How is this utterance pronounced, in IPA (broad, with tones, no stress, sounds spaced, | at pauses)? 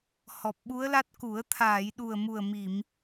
h ɔ˨˩ p̚ ɓ u˧˥ ə̯ l a˦˥ t̚ k u˨˩˦ ə̯ t̪ʰ aː˨˩˨ j ɗ u˨˩ ə̯ m u˨˩ ə̯ m i˨˩˨ m